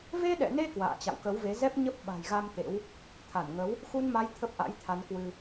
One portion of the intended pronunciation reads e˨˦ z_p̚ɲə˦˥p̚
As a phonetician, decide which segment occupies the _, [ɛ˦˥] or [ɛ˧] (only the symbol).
ɛ˦˥